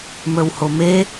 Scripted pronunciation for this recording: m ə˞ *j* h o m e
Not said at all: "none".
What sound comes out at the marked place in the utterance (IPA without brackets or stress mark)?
w